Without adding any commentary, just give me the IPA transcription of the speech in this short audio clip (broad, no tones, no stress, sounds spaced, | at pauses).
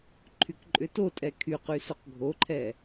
ǃʰ y k ǃʼ ʏ t o tʼ ɛ kʰ y q y s o q ɡʱ o ǃʰ ɛ